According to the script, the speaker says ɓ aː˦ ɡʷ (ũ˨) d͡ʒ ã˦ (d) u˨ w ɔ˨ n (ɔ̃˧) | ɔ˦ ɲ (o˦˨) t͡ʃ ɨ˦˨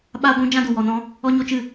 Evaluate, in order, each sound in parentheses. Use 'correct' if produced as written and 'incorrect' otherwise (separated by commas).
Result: incorrect, correct, correct, incorrect